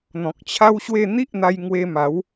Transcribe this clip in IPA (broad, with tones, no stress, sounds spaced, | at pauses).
n̪ ɔ̃˨ k̚ t͡ɕʰ a˦ w ɕ w e˥˧ n̪ i˦ ʔ n̪ a˧ j ŋ w e˧ m a˨˦ w